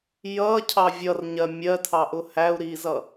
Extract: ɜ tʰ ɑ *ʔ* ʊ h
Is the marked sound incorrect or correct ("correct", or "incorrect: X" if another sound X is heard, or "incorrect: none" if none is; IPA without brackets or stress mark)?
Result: correct